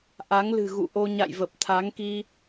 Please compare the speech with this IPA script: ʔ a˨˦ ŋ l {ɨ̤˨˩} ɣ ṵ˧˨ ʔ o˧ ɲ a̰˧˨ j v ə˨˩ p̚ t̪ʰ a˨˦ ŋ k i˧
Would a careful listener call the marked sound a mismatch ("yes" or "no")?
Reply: no